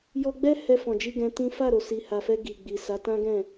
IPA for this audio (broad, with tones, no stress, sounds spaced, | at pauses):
j ɔ˧ ɡ͡b ɛ˦ h ɛ˧ f ɔ̃˨ d͡ʒ i˧ ɡ ɛ̃˧ t ĩ˦ f a˦˨ ɾ o˨ s i˨ h a˨ f ɛ˧ ɡ i˨ ɡ͡b i˨ s a˨˦ t ã˦ ɡ ɛ̃˦˨